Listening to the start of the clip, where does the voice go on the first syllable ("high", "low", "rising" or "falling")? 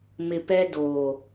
low